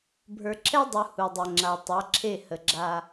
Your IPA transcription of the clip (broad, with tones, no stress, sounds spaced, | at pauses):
bʱ ə˞˨ ǁʰ ɛ˦ dˤ u˨ h u˨ dˤ e˨ ŋ͡ǁ a˨ tˤ a˨˦ ǁʰ e˦˨ h ə˨ ɡ͡ǁ a˦